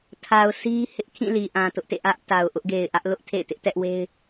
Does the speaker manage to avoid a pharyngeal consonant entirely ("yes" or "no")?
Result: yes